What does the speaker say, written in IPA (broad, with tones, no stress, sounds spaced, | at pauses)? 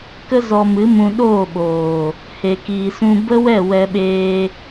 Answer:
k ə˦ z ɔ˧ m ɨ˨˦ m ũ˧ ɗ oː˦˨ ɓ oː˨ | h e˨ k iː˨ s ũ˧ b ə˦ w ɛ˦˨ w ɛ˧ ɓ eː˧